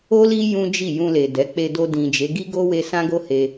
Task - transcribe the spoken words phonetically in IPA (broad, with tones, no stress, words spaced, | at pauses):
o˦li˦ jũ˦ d͡ʒi˦˨ jũ˧le˨dɛ˨˦ k͡pe˧do˧dĩ˨d͡ʒe˨˦ ɡi˦ɡo˦we˧ sã˦ɡo˦he˧